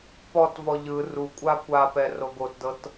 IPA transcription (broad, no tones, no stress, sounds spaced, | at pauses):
p ɔ t v ɔ ʎ ɯ r u kʷʼ a kʷ a p ɛ r o ɡ o t d ɤ t